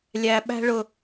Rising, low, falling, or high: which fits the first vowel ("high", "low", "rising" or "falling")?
high